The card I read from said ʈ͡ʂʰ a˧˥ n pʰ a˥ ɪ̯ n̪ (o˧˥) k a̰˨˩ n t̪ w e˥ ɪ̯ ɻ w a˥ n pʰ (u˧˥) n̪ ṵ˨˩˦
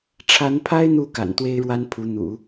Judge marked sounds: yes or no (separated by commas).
no, yes